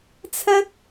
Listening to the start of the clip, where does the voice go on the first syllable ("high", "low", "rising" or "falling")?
high